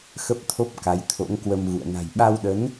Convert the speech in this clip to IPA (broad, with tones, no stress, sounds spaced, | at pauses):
x ə˦˥ p̚ t̪ʰ o˦˥ p̚ k a˨˦ j t̪ʰ o̰˧˥ ŋ k w ə˧ m ɣ ṵ˧˨ ə̯ n a̤˨˩ j ɓ a˧ w ɗ ə˨˦ n